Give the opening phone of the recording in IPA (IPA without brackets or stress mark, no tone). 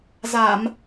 z